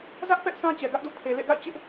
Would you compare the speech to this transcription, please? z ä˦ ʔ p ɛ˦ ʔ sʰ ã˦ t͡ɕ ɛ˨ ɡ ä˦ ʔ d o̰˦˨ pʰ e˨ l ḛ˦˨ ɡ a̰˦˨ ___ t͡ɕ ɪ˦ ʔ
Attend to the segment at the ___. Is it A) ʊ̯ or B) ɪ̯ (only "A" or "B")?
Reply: B